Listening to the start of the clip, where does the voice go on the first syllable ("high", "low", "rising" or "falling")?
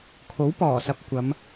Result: rising